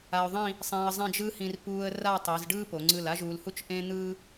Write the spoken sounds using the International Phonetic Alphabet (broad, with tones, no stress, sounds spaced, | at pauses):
a˧ ʊ̯ ðˤ ĩ˥˧ | sˤ ẽ˧ ə̯ zˤ ẽ˥˧ d͡ʒ ɯ˥ h ĩ˧ r p uː˥ ə̯ r a˥˧ tˤ i˩˧ z ɖ ɯː˥ p o˩˧ ŋ͡ǀ ɯ˧˩ l a˥ ʒ uː˧ l h u˥ t͡ʃ ʔ ẽ˥ n̪ ɯː˥